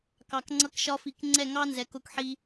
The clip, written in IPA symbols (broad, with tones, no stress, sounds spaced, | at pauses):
k ɑ˨ k ŋ͡ǀ ʌ˧ k ʃ ɒ˧ f i˨ k ŋ͡ǀ ɛ˦˨ ŋ ɑ˦ n z ɛ˨ k ʊ˧ k ħ i˧